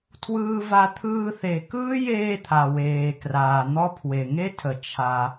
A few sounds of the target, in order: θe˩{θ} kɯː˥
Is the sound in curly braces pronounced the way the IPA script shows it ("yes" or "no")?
no